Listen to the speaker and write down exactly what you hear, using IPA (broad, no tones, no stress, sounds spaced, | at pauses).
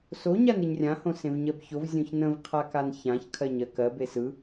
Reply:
s o ɲ a n ɨ ɲ rʲ ã h õ s ẽ v ɲ ɜ b ç o v zʲ õ ç n ə̃ v qʰ a k a n ç ã ç kʰ ɜ ɲ ɜ k ɜ b e s ɯ